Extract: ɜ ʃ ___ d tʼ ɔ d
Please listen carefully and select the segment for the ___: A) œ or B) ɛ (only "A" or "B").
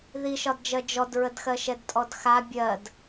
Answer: B